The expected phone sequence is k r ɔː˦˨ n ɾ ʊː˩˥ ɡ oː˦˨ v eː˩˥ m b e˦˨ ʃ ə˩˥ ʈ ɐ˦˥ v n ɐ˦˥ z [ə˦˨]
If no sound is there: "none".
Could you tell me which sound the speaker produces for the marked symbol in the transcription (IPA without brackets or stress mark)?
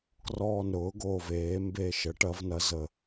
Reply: ə˦˨